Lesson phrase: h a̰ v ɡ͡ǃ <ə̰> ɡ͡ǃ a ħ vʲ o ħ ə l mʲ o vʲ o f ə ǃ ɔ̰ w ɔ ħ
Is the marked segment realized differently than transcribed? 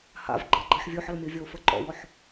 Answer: yes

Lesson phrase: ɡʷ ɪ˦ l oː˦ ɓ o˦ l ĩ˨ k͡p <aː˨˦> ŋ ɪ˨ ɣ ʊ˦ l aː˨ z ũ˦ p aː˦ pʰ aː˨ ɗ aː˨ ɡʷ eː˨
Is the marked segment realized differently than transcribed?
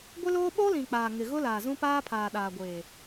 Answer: yes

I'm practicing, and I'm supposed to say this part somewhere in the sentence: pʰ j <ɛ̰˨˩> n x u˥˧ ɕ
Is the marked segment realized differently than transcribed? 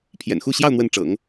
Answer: no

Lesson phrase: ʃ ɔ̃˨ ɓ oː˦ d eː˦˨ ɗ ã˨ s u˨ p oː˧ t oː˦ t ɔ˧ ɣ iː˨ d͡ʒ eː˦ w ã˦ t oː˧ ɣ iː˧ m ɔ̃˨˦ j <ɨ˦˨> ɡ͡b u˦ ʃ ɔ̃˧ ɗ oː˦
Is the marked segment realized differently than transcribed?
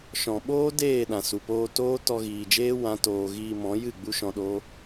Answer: no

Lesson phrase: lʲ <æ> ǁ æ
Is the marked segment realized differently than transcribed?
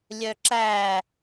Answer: yes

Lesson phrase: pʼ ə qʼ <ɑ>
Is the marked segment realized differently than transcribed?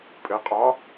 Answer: no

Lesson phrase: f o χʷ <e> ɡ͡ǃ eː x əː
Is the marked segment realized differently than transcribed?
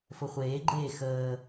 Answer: yes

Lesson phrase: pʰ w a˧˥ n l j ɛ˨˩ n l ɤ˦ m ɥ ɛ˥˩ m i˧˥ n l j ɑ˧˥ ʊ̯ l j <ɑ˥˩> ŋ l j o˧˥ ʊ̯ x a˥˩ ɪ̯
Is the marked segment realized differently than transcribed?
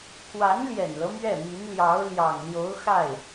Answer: yes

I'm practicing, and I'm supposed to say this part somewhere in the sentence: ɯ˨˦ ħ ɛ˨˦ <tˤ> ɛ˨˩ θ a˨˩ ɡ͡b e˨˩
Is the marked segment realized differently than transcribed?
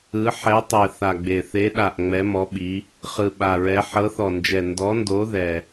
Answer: no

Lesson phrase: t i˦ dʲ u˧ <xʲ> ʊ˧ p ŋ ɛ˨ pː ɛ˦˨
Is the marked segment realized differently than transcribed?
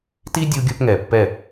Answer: yes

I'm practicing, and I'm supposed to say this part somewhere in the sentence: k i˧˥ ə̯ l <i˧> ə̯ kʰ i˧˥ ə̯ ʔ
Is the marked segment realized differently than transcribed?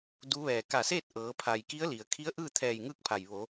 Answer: yes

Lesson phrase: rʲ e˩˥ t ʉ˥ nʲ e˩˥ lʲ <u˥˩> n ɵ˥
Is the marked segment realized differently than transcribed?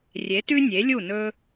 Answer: no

